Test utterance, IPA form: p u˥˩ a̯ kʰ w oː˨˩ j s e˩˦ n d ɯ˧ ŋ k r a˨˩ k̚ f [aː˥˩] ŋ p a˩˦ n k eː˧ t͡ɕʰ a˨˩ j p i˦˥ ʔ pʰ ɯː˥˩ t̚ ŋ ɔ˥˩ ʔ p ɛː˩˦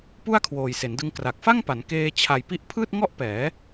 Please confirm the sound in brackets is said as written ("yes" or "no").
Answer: no